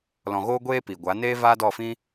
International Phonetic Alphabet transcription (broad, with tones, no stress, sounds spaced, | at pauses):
l ɔ̃˨ ɣ oː˦ ɡʷ eː˦ p i˨ ɡʷ a˨˦ n eː˦ v aː˦ d ɔ˦˨ f ĩ˦